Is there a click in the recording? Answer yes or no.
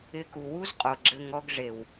yes